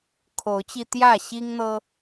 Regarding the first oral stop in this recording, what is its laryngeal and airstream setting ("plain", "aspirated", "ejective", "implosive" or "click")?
aspirated